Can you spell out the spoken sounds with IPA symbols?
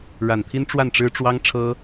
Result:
ɻa˨˩nt̪ʰi˥n ʈ͡ʂwa˥˩nʈ͡ʂɻ̩˥ʈ͡ʂwɑ˥ŋ ʈ͡ʂʰɤ˥

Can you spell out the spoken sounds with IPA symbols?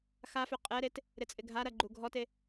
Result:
xafʏ qʼɛɾet | ɾɪt͡sʼɪɡʱaɾɐ ɡ͡ǃuɡʱɔte

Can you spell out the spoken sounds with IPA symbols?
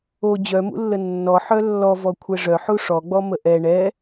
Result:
o d͡ʑœmṵlːə nːɔ ħœlːɔ vɔkʷʰɛʐœ ħuʂɔ ɡ͡bɔməʔɛ ɳɛ

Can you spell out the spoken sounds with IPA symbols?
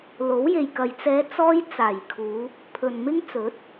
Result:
lo˨˥w je˨jkɐ˨j t͡sɛː˨˧ t͡sɔː˧j t͡saː˨˩jkʰuː˨˧ | pʰɵ˨nmɪ˥ŋt͡sɵ˨˥t̚

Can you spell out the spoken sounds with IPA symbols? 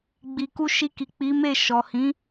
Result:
ɡ͡bi˨ku˧ ʃi˧ki˨ k͡pi˨˦me˦˨ ʃɔ˨hĩ˨˦

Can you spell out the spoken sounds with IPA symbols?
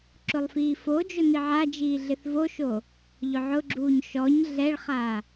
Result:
ǁʊlˠfiːfod͡ʒʊ niʕad͡ʒiː ɮɪθvoʃo | ʎʊʕʊɡ͡ǁuːɲ ʃɔɲ ɮɛɭχa

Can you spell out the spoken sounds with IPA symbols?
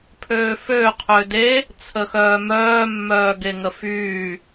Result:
pʰøːfø qʰøde | t͡sʰəxœːmœː mːœːɡeŋəfyː

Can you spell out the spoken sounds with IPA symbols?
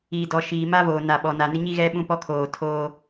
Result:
iː˨ dɔ˨ ʃiː˨ma˦voː˨na˨ ɓɔ˨na˨nɪ˦ ɲi˦ɣɛ˦ ɓũ˦pɔ˦kʰoː˨ tʰoː˦

